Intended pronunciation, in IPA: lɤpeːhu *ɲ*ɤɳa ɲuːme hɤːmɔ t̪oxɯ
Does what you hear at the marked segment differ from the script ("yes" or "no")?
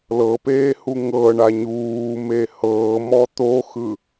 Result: yes